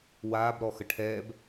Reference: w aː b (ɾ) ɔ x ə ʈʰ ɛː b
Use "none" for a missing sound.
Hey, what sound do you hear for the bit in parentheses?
ɾ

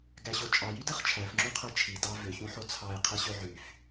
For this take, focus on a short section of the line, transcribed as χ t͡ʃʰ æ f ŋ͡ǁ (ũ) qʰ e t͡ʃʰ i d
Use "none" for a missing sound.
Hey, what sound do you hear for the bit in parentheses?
ũ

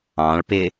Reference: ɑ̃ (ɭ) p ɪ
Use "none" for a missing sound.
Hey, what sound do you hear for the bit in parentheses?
ɭ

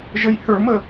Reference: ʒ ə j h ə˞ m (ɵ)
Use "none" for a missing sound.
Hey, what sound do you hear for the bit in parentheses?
ə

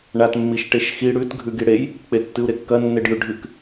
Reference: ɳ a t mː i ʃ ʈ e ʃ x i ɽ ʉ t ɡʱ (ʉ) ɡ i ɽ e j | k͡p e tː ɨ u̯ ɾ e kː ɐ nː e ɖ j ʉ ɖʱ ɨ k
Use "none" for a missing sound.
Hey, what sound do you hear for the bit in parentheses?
ʉ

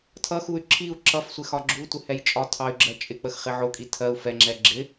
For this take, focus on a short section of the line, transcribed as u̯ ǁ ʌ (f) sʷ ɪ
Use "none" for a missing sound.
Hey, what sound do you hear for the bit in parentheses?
f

